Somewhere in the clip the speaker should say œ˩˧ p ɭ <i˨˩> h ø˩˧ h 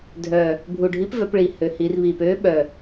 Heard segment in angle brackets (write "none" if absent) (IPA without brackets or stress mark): i˩˧